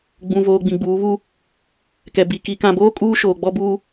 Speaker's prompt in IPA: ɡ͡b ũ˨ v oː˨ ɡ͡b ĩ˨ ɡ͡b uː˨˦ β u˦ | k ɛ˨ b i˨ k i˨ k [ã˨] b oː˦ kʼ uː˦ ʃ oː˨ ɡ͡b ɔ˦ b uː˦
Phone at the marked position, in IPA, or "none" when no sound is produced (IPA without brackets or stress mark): ã˨